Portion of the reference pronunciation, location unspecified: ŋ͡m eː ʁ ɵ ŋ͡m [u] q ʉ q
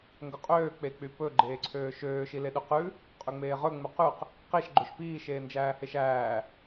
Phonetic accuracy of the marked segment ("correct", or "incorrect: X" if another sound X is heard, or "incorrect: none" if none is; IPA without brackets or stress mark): incorrect: ʉ